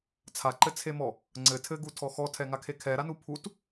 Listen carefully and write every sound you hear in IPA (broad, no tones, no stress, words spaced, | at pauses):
t͡sʰaǃɘt͡sʰemɔ | ŋ͡ǀɘ tʰɘɡutʰɔ xɔtʰɛŋakʰe kʰɛɾanu pʰut